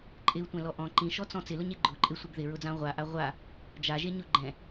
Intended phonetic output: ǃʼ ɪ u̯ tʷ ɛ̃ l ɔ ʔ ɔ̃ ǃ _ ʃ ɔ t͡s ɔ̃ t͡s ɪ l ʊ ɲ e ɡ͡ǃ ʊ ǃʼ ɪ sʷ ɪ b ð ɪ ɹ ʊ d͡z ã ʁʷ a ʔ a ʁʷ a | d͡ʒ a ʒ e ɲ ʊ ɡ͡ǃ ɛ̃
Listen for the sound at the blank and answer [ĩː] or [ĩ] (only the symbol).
ĩ